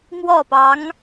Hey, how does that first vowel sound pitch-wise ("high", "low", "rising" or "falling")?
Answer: falling